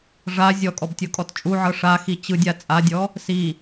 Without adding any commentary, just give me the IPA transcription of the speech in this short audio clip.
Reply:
ʐa zʲɔkʼɔbtʲɤkʼɔt t͡ʃʼuʕɤ ʂaxi t͡ɕɯdʲa t͡sʼadʲɔ | si

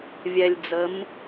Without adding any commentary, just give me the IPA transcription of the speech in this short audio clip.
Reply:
vʲɛ˨lʲd͡zə˨˦m

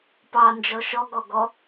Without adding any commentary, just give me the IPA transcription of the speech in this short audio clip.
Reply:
pɑnd͡ʒɔ ʃɔɡɔɡɔ

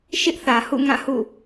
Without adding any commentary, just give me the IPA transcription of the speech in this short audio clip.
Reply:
ʃɪ˦ʔθä˨hṵ˦˨ ŋã˦˨hṵ˦˨

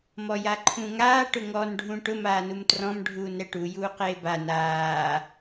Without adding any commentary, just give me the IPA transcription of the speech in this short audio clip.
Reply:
mɔjaǃʰũŋaː ʈʊŋɔn ɖʱũʈʊ maːnumtrɔ̃m ɖʱuːnɾɛʈu juːqeːba naː

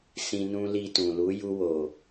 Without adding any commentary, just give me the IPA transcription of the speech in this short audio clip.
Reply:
sĩ˧nũ˦ li˧tũ˨ lu˨˦ju˧wo˨

